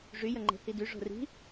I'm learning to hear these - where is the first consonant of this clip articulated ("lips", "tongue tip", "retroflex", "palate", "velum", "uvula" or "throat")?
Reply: retroflex